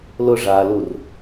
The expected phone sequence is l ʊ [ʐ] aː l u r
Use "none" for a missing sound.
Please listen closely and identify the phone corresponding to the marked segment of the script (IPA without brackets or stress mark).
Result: ʐ